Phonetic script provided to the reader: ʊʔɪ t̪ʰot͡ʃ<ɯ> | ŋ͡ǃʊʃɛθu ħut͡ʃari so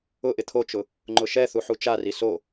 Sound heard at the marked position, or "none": ʊ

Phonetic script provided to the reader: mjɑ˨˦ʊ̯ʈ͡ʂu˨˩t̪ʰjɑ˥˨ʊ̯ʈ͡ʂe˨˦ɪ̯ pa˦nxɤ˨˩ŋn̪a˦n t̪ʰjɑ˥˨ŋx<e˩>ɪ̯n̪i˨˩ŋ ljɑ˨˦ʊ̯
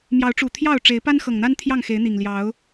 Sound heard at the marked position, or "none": e˨˦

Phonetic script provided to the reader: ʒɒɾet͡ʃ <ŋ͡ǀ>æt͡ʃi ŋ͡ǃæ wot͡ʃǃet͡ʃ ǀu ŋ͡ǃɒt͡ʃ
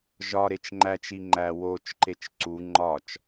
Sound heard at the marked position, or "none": ŋ͡ǃ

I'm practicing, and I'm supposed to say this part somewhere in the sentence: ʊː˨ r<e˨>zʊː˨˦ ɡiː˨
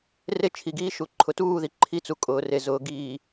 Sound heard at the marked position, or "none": e˨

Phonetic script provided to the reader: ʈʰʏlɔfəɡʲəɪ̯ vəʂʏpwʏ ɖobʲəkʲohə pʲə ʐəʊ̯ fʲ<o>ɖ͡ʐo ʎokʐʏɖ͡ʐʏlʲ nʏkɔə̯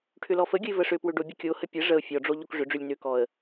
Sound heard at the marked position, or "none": ɔ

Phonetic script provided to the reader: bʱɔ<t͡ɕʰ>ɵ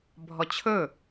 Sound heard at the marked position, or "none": t͡ɕʰ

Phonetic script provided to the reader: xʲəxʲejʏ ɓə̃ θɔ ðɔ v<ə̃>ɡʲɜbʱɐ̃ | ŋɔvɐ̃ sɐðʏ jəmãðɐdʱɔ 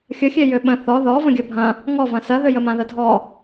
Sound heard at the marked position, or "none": ə̃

